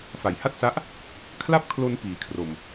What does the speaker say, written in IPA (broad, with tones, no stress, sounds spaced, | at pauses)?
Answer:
f a˨˩ j h a˥˩ t̚ s a˦˥ ʔ | kʰ l a˥˩ p̚ kʰ l o˧ n p iː˨˩ kʰ r o˨˩ m